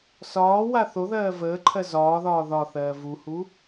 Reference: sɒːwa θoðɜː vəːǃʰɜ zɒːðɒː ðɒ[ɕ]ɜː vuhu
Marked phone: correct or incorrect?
incorrect